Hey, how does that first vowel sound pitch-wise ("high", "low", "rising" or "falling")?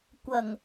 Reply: low